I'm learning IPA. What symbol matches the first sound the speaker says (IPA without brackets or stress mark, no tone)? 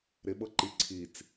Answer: ɾ